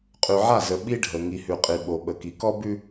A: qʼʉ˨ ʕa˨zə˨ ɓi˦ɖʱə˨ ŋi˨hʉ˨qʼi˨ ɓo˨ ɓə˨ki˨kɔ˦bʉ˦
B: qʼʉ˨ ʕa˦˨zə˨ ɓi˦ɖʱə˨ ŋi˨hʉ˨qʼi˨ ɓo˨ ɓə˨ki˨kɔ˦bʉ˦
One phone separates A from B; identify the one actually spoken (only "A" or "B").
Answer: B